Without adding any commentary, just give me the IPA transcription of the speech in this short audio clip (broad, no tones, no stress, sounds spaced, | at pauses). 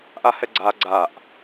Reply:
ʔ a h ɛ ɡ͡ǀ a ɡ͡ǀ a ʔ